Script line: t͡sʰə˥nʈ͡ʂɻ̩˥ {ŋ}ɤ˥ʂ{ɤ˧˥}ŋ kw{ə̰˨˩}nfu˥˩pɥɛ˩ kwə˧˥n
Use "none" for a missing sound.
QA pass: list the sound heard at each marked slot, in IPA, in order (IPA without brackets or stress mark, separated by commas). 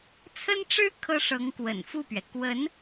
kʰ, ɤ˧˥, ə̰˨˩